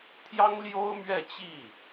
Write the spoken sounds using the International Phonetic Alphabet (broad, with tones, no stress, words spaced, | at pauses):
t̪ʰjɑ˥ŋljo˥ʊ̯ mɥɛ˥˧t͡ɕi˥˩